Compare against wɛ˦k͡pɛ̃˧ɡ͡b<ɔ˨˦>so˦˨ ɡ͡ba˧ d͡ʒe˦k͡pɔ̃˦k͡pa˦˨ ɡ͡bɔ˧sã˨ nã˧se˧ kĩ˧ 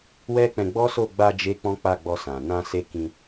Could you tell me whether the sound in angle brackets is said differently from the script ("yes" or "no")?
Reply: yes